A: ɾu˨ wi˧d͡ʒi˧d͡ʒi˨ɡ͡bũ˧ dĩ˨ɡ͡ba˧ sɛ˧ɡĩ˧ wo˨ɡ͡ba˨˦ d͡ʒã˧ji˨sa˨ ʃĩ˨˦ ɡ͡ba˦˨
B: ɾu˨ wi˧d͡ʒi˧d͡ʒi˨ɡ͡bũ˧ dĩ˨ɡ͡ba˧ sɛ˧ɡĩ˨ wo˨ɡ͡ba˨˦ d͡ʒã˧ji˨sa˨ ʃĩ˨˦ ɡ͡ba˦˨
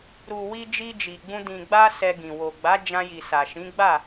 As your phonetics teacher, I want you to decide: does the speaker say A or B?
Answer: B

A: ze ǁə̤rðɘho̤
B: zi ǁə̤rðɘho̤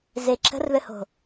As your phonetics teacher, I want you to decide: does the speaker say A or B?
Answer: A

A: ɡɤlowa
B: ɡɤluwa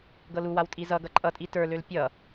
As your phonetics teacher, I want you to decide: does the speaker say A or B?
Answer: B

